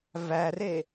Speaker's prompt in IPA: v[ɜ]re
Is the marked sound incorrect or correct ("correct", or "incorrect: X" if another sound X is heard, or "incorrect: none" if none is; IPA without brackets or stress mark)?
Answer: incorrect: æ